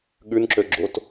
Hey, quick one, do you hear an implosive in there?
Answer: yes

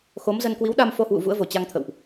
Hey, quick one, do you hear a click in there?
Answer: no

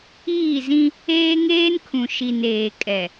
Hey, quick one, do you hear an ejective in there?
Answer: yes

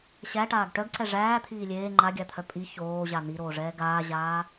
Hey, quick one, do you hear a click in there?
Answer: yes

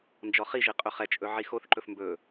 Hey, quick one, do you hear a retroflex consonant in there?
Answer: no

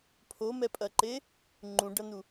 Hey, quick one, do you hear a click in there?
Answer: yes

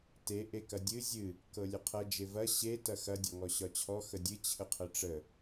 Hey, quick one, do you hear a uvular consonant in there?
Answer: yes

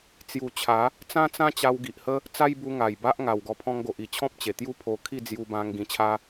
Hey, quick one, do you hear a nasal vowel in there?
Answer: yes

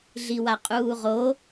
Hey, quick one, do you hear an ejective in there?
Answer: yes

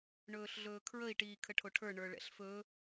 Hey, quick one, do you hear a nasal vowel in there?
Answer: no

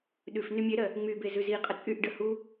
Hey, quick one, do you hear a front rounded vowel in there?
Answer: yes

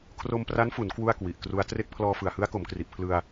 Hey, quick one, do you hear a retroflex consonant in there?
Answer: no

